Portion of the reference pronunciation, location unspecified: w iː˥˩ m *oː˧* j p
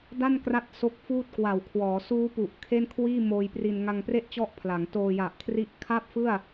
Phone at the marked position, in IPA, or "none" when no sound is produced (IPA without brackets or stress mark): oː˧